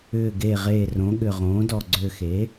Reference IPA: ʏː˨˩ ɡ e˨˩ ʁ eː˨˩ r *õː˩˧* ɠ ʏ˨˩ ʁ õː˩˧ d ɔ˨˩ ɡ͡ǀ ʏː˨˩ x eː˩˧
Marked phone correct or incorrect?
incorrect